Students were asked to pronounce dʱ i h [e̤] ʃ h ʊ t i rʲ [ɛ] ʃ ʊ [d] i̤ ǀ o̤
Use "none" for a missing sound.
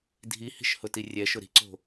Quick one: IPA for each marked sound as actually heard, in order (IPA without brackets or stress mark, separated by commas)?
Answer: i̤, ɛ, ɾ